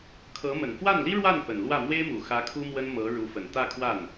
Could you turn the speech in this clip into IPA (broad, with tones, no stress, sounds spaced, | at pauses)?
kʰ ɤ˧˥ m ə˨˩ n f w a˥˩ n l i˥ ɻ w a˥˩ n p ə˨˩ n l w ä˥˩ m w e˥ ɪ̯ m u˨˩ x ä˧˥ kʰ u˥ m w ə˥ n m ɤ˧˥ ɻ u˧˥ f ə˨˩ n t̪ ä˥˧ kʰ w a˥˩ n